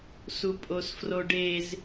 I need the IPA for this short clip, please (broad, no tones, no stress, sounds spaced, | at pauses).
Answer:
s u pʼ o s f r o ɖ e z